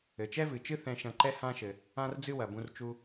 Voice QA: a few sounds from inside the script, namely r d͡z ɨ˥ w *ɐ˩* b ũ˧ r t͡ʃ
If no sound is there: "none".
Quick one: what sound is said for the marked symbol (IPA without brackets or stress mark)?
ɐ˩